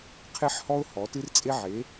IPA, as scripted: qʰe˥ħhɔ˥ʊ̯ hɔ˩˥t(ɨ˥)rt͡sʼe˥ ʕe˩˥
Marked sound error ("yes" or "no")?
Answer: no